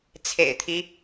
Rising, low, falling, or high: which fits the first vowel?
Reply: low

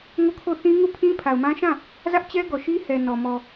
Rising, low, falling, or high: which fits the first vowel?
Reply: falling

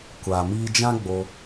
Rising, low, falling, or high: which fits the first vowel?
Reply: low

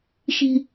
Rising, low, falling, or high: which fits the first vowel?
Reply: high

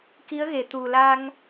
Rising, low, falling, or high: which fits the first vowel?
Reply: rising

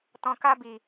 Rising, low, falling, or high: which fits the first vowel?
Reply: low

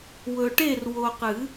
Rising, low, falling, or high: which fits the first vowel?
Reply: low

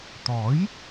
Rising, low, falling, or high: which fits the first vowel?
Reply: rising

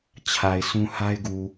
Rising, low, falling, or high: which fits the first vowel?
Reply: low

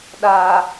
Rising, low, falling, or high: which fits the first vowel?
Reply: low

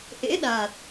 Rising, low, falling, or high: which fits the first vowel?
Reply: rising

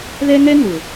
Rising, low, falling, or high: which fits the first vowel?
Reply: high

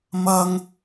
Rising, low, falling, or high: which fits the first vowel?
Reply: high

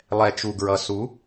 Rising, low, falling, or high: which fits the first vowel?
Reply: low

